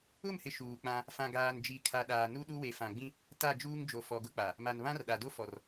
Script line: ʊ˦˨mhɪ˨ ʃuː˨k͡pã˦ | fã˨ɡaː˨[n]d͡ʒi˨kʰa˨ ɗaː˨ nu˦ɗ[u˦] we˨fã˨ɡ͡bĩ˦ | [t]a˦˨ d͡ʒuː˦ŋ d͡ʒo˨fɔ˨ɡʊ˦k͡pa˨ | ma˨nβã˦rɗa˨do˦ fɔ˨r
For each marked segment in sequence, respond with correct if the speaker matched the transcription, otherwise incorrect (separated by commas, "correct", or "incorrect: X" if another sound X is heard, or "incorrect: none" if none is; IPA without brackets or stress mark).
correct, correct, correct